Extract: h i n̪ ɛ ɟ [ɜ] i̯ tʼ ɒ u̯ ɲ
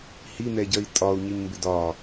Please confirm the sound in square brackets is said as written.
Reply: yes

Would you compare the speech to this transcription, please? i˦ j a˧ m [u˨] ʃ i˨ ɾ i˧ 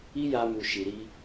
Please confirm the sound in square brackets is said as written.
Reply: yes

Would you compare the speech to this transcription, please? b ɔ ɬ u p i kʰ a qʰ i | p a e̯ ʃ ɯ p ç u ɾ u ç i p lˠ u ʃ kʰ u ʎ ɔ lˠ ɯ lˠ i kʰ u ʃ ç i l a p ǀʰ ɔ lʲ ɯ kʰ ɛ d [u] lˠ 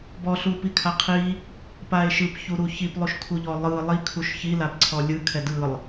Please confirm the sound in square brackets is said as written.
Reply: no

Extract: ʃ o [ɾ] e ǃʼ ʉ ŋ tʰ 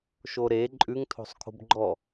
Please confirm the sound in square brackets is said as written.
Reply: yes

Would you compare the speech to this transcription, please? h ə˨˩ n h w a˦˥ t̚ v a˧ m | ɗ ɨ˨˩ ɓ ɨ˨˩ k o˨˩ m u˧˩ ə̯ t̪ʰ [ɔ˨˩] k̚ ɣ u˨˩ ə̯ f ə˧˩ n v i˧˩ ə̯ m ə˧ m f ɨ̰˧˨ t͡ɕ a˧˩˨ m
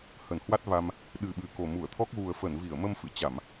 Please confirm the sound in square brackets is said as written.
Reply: no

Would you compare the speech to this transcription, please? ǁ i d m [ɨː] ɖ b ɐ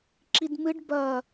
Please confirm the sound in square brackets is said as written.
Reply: no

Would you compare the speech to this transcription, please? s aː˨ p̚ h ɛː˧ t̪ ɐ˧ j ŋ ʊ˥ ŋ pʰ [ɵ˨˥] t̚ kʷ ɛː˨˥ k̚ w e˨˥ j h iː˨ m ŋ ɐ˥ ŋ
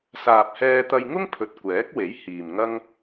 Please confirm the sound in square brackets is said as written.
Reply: no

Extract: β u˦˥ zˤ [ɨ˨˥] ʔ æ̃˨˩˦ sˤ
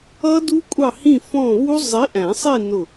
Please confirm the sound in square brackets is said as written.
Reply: no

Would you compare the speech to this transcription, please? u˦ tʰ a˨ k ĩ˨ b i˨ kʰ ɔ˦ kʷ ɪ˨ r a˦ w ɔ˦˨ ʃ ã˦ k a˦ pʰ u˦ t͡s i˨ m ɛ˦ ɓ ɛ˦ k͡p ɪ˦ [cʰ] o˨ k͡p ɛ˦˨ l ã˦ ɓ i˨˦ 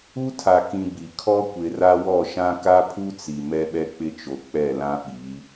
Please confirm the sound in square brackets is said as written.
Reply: no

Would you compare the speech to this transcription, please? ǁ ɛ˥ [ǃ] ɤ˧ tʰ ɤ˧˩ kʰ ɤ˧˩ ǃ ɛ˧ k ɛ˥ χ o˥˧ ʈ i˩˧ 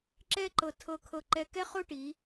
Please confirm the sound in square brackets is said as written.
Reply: yes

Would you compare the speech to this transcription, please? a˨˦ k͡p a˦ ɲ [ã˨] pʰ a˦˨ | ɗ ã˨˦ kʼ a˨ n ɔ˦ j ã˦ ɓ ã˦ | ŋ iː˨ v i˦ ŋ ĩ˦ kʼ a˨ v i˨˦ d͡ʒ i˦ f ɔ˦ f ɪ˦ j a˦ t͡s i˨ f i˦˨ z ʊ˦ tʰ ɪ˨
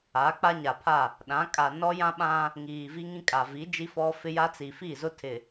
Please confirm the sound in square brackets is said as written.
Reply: no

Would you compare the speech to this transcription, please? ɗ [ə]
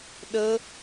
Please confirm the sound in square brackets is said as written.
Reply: yes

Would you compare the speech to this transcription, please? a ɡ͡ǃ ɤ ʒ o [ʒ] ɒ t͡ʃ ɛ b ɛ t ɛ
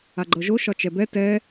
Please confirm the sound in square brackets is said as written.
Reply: no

